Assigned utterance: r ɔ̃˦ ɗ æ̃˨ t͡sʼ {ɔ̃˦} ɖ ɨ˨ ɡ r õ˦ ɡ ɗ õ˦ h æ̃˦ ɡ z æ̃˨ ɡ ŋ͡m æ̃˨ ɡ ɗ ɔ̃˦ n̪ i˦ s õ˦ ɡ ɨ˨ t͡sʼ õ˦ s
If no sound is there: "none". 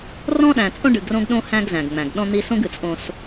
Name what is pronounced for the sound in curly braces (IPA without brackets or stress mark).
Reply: õ˦